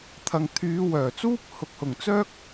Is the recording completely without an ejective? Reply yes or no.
yes